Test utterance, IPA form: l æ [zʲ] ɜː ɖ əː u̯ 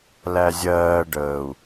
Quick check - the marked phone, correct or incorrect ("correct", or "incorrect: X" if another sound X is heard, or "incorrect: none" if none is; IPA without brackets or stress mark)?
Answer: correct